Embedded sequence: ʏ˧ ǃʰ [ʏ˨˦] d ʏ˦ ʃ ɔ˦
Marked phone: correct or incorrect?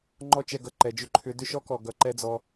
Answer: correct